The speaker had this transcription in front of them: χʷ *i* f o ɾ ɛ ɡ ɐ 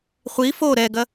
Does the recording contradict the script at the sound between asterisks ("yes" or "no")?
no